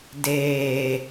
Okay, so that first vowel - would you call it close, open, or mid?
mid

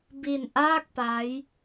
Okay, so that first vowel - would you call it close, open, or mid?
close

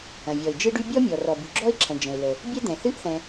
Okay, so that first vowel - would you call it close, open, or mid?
open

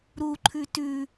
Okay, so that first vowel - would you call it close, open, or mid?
close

